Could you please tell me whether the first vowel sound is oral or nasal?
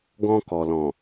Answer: nasal